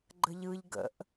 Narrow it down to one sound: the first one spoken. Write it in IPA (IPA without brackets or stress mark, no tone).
ɡ͡ǃ